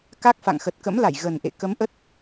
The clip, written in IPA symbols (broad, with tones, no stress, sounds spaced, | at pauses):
k a˦˥ k̚ f a̰˧˨ ŋ x ə˨˩ t̚ k ə̰˧˥ m l a˧˩ j ɣ ə˨˩ n ʔ ḛ˧˨ k ə˨˦ m ʔ ə˦˥ t̚